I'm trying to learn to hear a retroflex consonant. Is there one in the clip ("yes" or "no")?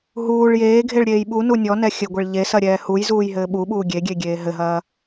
yes